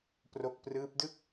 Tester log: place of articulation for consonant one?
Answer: labial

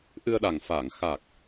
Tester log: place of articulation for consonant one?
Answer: glottal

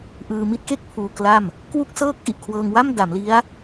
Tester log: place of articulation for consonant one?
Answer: glottal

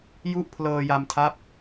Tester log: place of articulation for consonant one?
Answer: palatal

